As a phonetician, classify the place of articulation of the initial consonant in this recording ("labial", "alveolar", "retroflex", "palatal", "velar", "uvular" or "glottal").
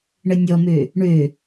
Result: retroflex